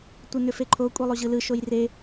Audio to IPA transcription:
tʷənʏfeǃʰo kʷʼelˠoʑɯlɯ ʃojre

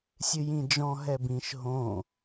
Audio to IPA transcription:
sʲɨjĩd͡ʒɔ̃ ɦɛbĩʃ ɦõ

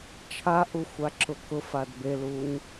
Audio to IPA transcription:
t͡ʃʰaʔuxʷaǁʊ kʊfad beluɲ

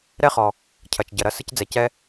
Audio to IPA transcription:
ɾɛ˥χɔ˩ | cʰɐ˩t͡ʃ ɟɐ˩ɾɐ˥ sɨ˥cd͡zɛ˩cɛ˥

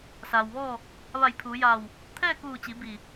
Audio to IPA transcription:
saː˩wʋɔː˥˨ | ʋa˧˩jpʰuː˩˧jaː˧˩w | t̪ʰɛː˥˨kuː˧˩t͡ɕi˩˧ bi˧˩

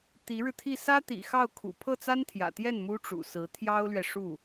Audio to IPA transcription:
t̪i˧˥ɻɻ̩˧t̪ʰi˥˩ sä˥ t̪ḭ˨˩xɑ˥˩ʊ̯kʰṵ˨˩ pʰɤ˥˩t͡sa˥nt̪ʰjä̰˨˩t̪jɛ˥˩n mu˥ʈ͡ʂṵ˨˩sɹ̩˧˥ t̪ʰjɑ˥ʊ̯lɥɛ˨ʂu˥˩

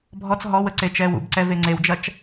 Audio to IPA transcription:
bʱɔt͡s ɦɔwə ǀet͡ʃɛːwṵbǀɛ veŋ͡ǀewd͡ʒɐt͡ʃ

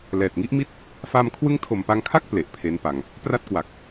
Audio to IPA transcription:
lɛː˨˩t̚ŋi˦˥ʔmi˥˩t̚ | fa˧m kʰwɯ˦˥ŋtʰo˨˩mpa˧ŋkʰa˥˩k̚ ple˨˩ʔpʰe˦˥npa˧ŋ | pra˥˩t̚kwa˨˩k̚

